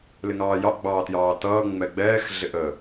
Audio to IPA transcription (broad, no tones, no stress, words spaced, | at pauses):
lɪŋɑːjɑʔ ɡ͡bɑːtjɑːtʌː ŋ͡mɛɡ͡bɛːx ɮɪʔə